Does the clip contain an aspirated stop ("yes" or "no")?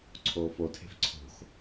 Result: yes